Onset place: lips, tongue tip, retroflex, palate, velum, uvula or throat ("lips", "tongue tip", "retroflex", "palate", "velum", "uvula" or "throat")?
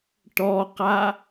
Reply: retroflex